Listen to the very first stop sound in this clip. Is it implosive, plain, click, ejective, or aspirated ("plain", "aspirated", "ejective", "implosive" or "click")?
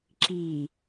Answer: click